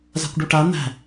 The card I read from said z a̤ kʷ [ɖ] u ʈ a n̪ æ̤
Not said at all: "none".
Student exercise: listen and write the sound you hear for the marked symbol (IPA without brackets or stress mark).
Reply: ɖ